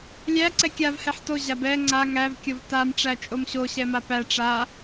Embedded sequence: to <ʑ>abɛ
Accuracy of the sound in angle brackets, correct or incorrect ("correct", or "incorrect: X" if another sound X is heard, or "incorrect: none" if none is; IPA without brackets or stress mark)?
correct